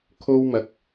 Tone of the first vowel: high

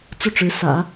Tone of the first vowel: falling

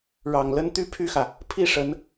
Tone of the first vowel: low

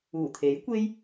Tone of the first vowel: low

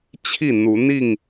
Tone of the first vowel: falling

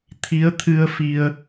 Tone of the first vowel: rising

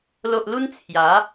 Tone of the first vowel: low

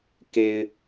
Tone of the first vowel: low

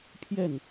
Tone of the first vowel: falling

